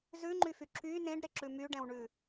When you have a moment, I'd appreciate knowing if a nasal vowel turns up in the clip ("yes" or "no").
yes